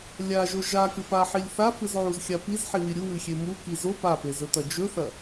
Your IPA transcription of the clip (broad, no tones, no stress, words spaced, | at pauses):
lʲaʒo ʒakɨ paħilʲ θafɨzʕuzxʲa pizħiwi ɾʲuwɨxʲe muki zo papezɵtɐ d͡ʒɵθɐ